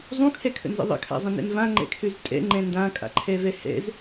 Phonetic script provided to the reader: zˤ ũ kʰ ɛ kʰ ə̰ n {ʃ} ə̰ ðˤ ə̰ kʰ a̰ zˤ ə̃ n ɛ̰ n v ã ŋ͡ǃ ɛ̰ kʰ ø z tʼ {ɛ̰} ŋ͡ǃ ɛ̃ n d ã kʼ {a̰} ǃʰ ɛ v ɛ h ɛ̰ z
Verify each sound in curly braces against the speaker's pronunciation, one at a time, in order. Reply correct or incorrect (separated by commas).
incorrect, correct, correct